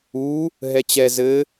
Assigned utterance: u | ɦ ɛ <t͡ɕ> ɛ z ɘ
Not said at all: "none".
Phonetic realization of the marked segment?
t͡ɕ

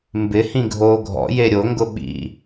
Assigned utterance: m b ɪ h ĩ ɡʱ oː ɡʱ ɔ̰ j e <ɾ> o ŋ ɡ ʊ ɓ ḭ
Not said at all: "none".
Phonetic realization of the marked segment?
ɾʲ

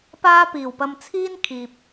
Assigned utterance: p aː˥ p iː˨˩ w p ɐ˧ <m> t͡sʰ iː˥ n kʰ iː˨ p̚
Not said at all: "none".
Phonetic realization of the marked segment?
m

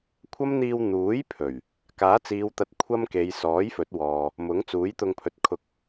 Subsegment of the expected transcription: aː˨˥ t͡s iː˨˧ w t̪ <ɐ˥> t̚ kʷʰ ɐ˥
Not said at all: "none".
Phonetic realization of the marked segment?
ɐ˨˥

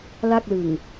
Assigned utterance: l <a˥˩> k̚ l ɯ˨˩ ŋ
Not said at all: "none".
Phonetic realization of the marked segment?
a˥˩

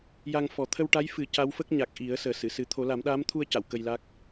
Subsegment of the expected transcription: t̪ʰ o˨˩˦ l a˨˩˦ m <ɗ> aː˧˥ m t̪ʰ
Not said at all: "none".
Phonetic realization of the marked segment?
ɗ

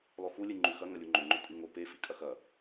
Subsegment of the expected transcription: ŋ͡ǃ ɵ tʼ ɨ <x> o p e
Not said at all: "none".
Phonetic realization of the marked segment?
ŋ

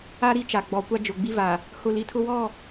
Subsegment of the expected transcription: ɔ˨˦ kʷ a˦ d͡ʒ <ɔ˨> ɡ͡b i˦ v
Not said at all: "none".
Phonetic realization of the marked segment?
ʊ˨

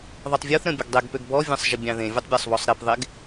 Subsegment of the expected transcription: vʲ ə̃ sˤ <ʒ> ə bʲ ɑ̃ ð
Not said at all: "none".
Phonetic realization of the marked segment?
ʒ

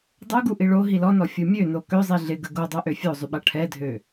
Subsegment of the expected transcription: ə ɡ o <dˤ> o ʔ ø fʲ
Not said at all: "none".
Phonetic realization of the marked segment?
dˤ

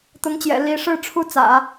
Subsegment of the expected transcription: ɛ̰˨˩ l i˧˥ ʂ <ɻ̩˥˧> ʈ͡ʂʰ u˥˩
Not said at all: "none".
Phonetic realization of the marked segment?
ɻ̩˥˧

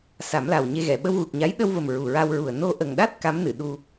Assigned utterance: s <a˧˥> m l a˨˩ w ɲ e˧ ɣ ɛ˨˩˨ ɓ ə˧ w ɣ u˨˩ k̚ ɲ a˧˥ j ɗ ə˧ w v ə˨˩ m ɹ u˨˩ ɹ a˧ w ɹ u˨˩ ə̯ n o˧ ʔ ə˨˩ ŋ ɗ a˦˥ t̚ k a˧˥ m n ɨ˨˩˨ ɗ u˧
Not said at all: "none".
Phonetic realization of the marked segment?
a˨˩˦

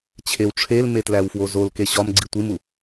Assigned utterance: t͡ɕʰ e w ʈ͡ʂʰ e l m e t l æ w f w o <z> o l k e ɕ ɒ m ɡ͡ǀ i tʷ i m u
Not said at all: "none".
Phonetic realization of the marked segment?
z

